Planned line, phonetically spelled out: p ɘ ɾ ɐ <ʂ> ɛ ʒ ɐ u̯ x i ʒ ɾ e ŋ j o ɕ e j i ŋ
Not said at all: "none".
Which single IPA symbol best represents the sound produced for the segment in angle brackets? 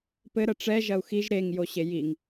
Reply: ʈ͡ʂ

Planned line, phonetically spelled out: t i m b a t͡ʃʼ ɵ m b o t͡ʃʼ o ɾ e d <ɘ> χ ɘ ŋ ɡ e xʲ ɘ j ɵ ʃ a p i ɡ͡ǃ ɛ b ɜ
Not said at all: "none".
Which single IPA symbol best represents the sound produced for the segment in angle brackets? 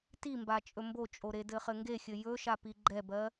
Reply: ɘ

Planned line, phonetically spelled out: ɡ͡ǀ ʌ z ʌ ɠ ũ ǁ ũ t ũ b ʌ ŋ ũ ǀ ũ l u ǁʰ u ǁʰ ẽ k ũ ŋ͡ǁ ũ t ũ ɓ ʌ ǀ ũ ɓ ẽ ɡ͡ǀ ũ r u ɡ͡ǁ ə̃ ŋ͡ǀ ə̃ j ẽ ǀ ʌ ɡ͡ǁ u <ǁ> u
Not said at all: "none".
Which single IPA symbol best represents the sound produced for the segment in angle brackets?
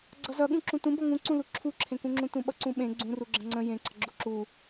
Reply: ǁ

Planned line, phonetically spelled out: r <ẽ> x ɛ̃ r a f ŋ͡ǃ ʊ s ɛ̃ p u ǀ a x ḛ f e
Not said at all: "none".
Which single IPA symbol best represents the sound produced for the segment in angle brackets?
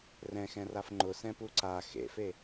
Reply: ɛ̃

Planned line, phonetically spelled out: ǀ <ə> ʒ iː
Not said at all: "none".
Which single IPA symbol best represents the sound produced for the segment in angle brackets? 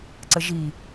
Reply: ə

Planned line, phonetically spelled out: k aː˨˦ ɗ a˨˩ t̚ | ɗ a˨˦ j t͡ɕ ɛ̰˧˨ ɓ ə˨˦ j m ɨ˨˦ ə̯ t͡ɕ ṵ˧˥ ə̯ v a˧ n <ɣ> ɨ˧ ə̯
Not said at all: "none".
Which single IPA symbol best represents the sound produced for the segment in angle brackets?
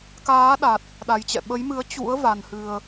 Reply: h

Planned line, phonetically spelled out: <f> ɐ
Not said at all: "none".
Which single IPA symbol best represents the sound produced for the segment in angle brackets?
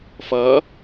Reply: f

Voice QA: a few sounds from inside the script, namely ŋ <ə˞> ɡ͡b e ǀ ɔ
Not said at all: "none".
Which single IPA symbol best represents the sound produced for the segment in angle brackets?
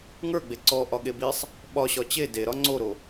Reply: ə˞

